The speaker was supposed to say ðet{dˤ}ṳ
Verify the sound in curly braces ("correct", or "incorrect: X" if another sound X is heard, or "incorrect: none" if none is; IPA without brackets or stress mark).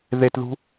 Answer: incorrect: ð